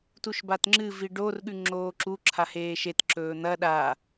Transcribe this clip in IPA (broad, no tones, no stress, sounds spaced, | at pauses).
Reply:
t u ʃ b a t ŋ͡ǁ ɨ v i ɖ o r ɠ ʉ ŋ͡ǁ oː ǁ u ǁʰ a h eː ʃ e t ǁ ɵː n̪ ɐ ɗ a